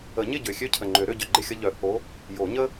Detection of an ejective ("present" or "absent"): absent